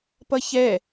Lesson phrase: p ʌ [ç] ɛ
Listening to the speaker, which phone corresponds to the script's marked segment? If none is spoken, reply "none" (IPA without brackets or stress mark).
ç